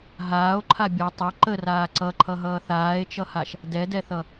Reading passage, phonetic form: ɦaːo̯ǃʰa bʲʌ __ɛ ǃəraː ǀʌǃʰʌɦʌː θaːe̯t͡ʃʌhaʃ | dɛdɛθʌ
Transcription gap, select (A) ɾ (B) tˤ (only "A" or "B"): B